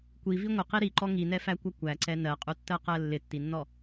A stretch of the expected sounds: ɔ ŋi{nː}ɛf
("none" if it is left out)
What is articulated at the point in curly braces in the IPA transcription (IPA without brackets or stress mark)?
n